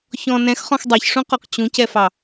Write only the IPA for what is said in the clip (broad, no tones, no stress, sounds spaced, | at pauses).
ç ɔ̃ n ɛ̃ x χ ɔ̃ x dˤ ɛ ç ʂ ũ q ɔ q t͡ɕ ũ c ɛ f ɑ